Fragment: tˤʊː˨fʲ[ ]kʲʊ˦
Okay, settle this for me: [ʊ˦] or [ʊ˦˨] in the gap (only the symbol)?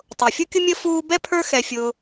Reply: ʊ˦